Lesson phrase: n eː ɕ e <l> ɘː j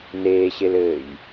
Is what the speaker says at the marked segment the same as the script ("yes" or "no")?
yes